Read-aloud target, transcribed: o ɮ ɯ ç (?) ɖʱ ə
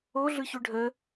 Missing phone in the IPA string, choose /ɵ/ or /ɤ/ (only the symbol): ɵ